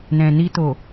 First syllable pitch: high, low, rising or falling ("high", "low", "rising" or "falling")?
low